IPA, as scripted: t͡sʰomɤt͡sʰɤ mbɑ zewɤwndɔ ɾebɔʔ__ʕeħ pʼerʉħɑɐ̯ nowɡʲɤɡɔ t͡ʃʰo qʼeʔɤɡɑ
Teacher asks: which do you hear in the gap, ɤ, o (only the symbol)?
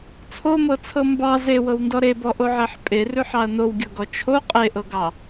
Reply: o